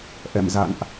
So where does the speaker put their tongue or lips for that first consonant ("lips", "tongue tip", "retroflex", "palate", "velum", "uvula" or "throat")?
throat